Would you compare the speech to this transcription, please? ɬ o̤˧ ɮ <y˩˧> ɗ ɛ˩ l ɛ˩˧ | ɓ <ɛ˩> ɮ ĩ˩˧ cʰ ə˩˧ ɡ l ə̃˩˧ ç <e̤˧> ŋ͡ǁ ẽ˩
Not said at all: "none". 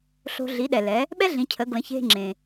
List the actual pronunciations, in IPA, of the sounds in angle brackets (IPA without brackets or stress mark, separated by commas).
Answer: i˩˧, ɛ˥, e̤˧